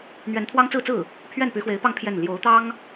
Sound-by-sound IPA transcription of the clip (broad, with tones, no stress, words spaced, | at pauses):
n̪ɥɛ˧˥nt̪ʰwɑ˥ŋt͡sɹ̩˥˧t͡sɹ̩˥˩ | pʰɥɛ˥˩npy˧˥xwe˧˥ɪ̯pɑ˥˧ŋ pʰjɛ˥˩n ljo˧˥ʊ̯t̪ɑ˥ŋ